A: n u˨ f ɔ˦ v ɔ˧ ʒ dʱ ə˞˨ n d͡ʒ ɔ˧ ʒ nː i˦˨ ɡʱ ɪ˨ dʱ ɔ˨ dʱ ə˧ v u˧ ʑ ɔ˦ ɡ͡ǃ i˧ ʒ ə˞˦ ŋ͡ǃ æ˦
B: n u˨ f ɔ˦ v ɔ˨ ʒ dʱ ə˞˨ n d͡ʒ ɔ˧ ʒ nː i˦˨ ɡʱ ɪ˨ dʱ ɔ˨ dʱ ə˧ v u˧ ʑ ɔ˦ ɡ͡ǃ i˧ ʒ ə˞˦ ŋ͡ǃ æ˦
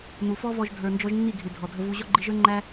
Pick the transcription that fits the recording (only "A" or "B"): A